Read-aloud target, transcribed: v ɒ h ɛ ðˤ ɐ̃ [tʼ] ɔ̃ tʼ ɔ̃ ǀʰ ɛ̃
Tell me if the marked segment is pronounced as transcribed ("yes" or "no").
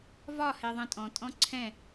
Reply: yes